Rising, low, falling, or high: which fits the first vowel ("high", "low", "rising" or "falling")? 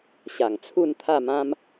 low